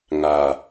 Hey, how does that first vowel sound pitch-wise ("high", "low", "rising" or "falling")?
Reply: low